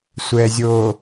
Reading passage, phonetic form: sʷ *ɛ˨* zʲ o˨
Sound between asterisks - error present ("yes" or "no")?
no